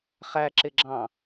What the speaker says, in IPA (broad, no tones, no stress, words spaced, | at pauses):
χæǁɪɡ͡ǁɑ̃